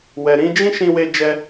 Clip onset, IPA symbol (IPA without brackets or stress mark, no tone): w